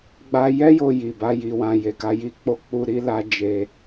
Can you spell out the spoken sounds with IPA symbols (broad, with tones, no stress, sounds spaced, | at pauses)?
ɡ͡b a˧ j ɛ˦ j o˧ j i˨ b a˧ j i˧ w ã˧ j e˨ k a˧ j i˧ k͡p o˦ k͡p u˧ ɾ i˦ l a˦ d͡ʒ e˦